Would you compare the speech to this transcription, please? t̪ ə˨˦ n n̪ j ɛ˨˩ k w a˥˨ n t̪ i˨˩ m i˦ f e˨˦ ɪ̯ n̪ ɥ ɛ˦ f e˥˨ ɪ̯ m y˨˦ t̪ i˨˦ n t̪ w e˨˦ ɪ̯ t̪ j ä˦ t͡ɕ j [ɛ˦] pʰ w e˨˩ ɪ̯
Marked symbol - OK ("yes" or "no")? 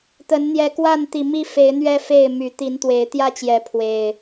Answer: no